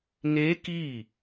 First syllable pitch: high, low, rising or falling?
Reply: rising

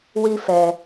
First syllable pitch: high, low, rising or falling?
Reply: high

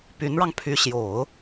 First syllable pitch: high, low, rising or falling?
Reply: rising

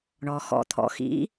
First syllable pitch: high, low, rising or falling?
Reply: low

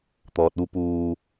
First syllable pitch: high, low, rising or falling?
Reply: low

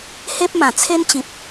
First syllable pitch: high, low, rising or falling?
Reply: high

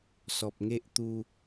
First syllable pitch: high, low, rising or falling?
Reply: low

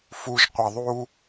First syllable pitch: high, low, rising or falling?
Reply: low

